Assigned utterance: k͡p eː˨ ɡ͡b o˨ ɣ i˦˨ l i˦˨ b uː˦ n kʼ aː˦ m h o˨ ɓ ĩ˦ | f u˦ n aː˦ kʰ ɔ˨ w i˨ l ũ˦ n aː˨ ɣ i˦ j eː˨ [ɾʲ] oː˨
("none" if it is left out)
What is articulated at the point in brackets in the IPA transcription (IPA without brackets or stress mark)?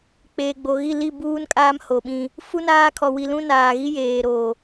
ɾ